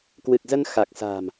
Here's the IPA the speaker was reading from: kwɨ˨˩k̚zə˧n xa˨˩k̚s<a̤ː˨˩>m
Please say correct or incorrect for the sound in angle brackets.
correct